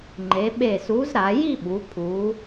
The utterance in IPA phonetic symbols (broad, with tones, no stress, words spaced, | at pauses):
ŋ͡ǃe˩˧ ɓe˧˩su˨˥zɾa˩˧ ji˥˧ɓu˩˧ pʰu˩˧